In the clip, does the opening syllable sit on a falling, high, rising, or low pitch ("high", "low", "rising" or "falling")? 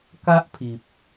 high